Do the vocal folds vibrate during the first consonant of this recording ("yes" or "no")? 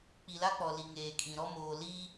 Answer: no